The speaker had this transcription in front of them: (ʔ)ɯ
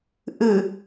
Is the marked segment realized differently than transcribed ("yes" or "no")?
no